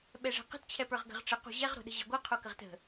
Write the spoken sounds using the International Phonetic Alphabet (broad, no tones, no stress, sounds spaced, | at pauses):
ɓ ɛ ʐ ɛ̤ q ə̤ t t͡ɕʰ ɛ p ə˞ ʁ ɡ ə̤ ʁ ʈ͡ʂ ə q o̤ ʑ ɛ ʁ ɾ o̤ ɗ ə̤ ʑ ɜ ɡʷ ɜ qʰ o k ə ʁ t ə̤